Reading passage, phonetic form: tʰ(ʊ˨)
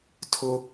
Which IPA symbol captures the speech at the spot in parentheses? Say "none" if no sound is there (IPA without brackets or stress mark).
ʊ˦